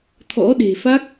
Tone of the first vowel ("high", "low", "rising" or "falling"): rising